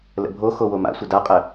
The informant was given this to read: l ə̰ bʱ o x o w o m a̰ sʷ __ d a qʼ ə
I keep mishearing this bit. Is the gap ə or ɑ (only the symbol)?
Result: ə